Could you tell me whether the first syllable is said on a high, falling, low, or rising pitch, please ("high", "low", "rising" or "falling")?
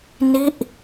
falling